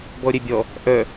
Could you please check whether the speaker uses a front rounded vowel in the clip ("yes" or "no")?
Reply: yes